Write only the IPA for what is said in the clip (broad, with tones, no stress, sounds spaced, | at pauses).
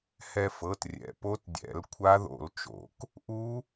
h ɛ˧ f ɤ˩˧˩ t rʲ ɛ̰˩˧˩ p o˦˥ t dʲ ɛ̰˨˩˦ l kʷʰ a˦˥ ð o̰˨˩˦ l t͡ʃ o̰˨˩˦ k | ʔ u˦˥